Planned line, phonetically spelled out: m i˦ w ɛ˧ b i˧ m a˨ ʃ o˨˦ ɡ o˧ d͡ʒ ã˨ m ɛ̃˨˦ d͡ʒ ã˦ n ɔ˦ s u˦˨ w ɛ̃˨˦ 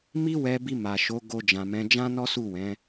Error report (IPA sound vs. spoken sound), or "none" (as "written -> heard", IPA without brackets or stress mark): none